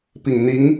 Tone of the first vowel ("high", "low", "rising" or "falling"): low